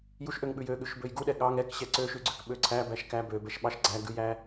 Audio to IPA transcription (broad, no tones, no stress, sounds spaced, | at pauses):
j u ʃ ʔ ø ŋ ɓ ʉ j ø ɠ ʉ ʃ b ø j ɡ u ɗ ɛ ɠ ɑ ŋ ɛ k ɕ ɛ ǀ ø ʃ ʉ ɡ͡ǀ ø k ɓ ø ǀʰ æ b æ ʃ k æ b ø b ɛ ʃ ɓ ɑ ʃ ɡ͡ǀ æ ɡ ʉ j æ